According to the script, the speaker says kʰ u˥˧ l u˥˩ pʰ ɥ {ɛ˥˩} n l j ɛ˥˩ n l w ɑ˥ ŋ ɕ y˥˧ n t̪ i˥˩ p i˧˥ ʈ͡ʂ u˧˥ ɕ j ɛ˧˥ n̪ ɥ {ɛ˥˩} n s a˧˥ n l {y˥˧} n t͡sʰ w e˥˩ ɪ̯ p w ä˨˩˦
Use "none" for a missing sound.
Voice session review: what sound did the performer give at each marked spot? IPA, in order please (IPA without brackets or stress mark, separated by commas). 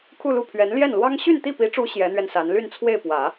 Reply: ɛ˧˥, ɛ˧, y˥˧